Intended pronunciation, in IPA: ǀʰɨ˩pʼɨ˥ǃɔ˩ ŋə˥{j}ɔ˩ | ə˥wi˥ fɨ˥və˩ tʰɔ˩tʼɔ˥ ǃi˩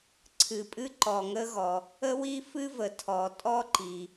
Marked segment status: incorrect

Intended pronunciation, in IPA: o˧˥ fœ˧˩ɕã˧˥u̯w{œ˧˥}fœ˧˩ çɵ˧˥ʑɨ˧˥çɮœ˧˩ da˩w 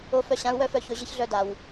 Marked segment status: correct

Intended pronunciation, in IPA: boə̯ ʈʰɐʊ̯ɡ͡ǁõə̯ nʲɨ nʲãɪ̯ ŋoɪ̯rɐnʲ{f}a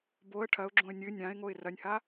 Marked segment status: incorrect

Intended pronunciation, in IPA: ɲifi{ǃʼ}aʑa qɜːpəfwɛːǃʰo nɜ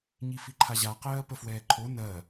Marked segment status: incorrect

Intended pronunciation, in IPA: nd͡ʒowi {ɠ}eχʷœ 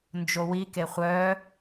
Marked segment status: incorrect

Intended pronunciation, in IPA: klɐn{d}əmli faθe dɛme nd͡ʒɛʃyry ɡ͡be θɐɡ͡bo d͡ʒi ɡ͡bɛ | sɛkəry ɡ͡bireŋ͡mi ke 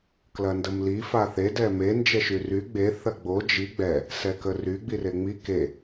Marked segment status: correct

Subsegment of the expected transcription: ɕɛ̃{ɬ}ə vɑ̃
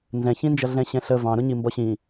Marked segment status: correct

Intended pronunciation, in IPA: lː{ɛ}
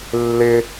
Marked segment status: incorrect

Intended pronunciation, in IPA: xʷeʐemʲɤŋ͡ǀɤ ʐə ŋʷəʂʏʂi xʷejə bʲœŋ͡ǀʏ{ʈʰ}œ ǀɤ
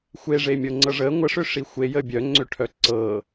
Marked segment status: correct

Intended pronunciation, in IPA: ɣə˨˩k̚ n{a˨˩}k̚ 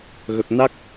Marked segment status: incorrect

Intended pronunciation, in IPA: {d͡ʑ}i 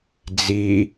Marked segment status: incorrect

